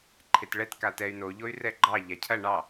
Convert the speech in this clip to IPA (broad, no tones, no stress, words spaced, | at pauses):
ǃʰetɭɛt katɛy̯ no ʎoy̯rɛɡ͡ǃɑ ʎacʰɐ ɳɑ